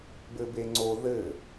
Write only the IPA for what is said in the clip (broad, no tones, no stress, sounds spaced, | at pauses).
b ɘ b e ŋ͡ǀ o ð ɘ